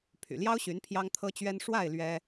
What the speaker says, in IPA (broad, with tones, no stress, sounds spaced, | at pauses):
pʰ y̰˨˩ l j ɑ˥ ʊ̯ ɕ y˧˥ n pʰ j ɑ˥ ŋ t̪ʰ ɤ˥ t͡ɕ ɥ ɛ˥ n ʂ w a˥˩ ɪ̯ l ɥ ɛ˥